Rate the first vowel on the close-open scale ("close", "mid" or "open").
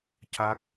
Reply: open